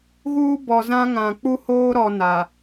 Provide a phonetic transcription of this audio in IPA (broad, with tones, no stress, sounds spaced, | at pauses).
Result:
ɣ uː˦ b ɔ˨ z ã˦ ŋ ã˨ k͡p u˦ h oː˦ ɾ ɔ˦ n a˨